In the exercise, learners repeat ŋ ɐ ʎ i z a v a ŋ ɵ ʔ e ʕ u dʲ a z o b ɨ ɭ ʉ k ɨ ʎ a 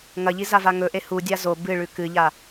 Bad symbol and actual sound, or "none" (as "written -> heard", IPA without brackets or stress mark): ʕ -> h